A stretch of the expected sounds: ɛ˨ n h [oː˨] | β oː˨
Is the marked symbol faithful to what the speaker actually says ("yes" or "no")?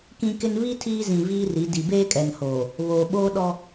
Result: yes